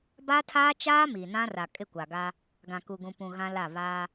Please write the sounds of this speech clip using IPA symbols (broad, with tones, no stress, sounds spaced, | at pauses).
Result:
b a˦ tʰ aː˦ t͡ʃ aː˦ m i˨ n ã˦ r a˨ kʼ ɪ˦˨ kʷ a˨ ɡ a˦ | ɡ ã˨ k u˨ ɡ ũ˨ p ũ˨ ɣ ã˦ l a˦˨ β aː˦